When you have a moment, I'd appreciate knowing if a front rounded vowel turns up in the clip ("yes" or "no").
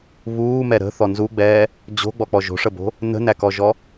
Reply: no